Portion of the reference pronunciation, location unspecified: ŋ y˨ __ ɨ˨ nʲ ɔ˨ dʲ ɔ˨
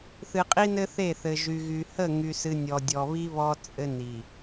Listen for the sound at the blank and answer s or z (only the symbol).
s